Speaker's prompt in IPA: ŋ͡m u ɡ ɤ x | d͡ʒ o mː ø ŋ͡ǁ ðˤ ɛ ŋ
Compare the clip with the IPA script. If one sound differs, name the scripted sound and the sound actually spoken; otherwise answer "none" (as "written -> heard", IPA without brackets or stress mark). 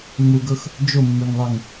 ŋ͡ǁ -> ŋ